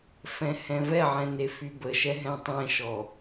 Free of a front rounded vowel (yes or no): no